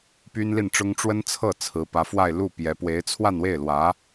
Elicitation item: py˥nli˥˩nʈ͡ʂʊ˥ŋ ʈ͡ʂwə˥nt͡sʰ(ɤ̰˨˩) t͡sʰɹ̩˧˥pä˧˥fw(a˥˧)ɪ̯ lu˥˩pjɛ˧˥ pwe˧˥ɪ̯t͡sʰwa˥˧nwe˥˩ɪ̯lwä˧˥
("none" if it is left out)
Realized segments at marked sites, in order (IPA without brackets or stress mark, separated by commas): ɤ˥˩, a˥˧